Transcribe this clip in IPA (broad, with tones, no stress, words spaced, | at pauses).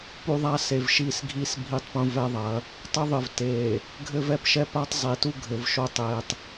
pu˦ðˤa˦ se˨vʃi˦˨sɡʱi˦s bʱi˦tˤpũ˦vɛ˦ðˤɐ˨˦ | tˤɘ˦ðˤɨ˨v te˨ | ɡʱɘ˦vɛ˦pʃɛ˦pa˦tˤ zˤi˨tu˦ɡʱɘ˨vʃo˦ tˤe˨tˤ